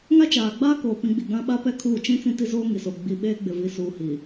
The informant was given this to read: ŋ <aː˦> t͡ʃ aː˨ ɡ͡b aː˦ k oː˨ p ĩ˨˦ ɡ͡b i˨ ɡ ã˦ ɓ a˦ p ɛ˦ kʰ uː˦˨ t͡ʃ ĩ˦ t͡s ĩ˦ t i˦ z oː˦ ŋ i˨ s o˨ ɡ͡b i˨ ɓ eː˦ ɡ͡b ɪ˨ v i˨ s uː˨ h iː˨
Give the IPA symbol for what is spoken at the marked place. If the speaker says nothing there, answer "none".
a˦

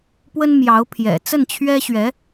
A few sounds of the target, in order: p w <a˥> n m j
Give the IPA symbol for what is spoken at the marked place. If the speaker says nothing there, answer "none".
ə˥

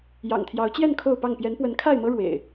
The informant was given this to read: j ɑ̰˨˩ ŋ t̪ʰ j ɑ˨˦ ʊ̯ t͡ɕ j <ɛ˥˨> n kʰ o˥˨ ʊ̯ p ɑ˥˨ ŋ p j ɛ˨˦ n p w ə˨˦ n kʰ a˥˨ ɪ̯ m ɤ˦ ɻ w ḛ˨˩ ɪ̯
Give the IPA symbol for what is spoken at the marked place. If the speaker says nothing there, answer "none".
ɛ˥˨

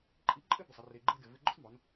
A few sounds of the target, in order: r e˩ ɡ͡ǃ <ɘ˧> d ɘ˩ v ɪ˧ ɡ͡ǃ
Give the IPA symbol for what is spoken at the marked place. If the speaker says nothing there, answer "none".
ɘ˧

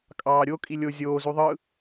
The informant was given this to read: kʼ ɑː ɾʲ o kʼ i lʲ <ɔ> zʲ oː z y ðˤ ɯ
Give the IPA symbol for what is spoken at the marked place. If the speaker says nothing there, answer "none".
o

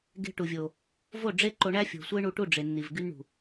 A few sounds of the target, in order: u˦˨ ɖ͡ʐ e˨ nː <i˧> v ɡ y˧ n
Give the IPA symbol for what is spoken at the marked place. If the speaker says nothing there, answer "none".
i˨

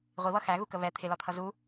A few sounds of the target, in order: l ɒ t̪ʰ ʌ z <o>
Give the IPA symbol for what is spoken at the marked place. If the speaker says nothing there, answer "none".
u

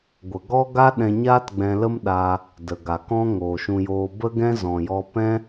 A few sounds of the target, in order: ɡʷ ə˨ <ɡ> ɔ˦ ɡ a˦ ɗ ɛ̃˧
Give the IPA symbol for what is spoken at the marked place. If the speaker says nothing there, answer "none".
ɡ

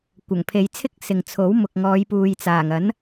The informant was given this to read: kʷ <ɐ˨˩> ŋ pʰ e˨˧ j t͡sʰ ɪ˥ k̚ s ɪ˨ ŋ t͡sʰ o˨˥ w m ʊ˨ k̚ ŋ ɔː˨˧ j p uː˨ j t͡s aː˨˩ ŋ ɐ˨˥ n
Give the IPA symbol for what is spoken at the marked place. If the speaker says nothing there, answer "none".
ɐ˨˩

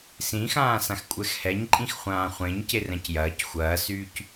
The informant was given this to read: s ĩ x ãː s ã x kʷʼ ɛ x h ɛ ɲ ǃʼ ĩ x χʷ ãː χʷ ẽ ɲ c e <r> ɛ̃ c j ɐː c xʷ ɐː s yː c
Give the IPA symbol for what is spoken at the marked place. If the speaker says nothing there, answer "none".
r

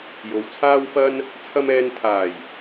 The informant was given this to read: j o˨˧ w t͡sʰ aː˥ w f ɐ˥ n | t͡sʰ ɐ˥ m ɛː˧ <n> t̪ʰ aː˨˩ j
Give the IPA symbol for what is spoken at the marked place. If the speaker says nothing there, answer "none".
n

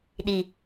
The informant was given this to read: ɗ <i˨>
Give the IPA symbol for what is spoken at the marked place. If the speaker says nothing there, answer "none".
i˨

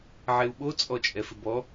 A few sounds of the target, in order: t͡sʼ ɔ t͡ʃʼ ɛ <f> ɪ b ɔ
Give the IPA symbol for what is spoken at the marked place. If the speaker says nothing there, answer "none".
f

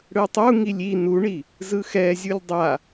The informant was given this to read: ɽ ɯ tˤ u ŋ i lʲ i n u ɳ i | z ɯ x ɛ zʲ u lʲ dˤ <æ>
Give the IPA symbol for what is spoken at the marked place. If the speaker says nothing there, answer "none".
a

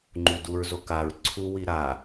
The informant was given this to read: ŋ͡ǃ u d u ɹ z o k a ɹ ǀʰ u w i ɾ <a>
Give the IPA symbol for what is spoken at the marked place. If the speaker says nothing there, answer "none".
a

